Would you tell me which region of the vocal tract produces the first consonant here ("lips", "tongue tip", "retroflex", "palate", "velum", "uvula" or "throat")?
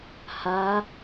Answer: throat